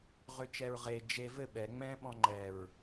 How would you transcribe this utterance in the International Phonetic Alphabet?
ʁ ø t͡ʃ ɛ ɹ ʁ e d͡ʒ e v ɘ ɓ ɛ ŋ͡m ɛ̃ ɓ ɔ̃ ŋ͡ǃ ɛ ɹ

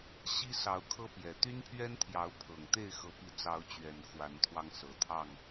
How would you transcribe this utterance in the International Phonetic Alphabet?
ɕ i˦ s ɑ˨˦ ʊ̯ kʰ ɤ˦ p j ɛ˨˩ t̪ y˦ n pʰ ɥ ɛ˦ n t̪ʰ j ɑ˨˦ ʊ̯ pʰ ɤ˨˩ ŋ t̪ e˥˨ ɪ̯ x ɤ˨˦ p i˨˦ t͡s ɑ˨˦ ʊ̯ t͡ɕ ɥ ɛ˨˩ n x w a˨˦ n t̪ʰ w ɑ˧ ŋ s ɤ˨˩ t̪ʰ ɑ˥˨ ŋ

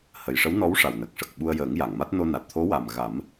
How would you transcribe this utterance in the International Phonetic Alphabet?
h ə˨˩ j ʂ ə˧˥ w n ɔ˧˥ w ʂ a˨˩ w n ə˨˩ k̚ ʂ ə˨˩ k̚ ɓ u˧ ə̯ j əː˨˩˦ ŋ j a˨˩˨ ŋ m a˦˥ t̚ n o˧ n a˨˩ t̚ t̪ʰ o˧˥ w a˨˩ m ɣ a˨˩˦ m

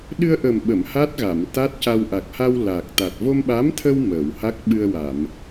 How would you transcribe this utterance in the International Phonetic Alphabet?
ɗ ɨ˧ ə̯ ʔ ə˨˩ m ɓ ə˨˩˨ m h a˦˥ t̚ ɣ a˨˩˨ m t̪ a˦˥ t̚ c a˧ w ʔ a˨˩ k̚ h a˧ w l a˨˩ k̚ t̪ a˨˩ t̚ v o˧ m ɓ a˧˥ m t̪ʰ ə˧ w m ə˨˩˨ w h a˦˥ k̚ ɓ ɨ˧ ə̯ w a˨˩˨ m

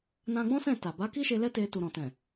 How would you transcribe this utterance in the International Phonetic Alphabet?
n ã˧ ɡ͡b ɔ̃˦ s ɛ̃˦˨ t a˨ b a˨˦ k i˦ ʃ e˧ l ɛ˦ t e˧ t u˨ ɾ ɔ̃˨ t ɛ̃˨

